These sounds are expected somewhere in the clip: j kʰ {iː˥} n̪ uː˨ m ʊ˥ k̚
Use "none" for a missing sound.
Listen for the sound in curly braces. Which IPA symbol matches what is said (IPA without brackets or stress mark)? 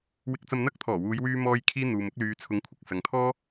iː˥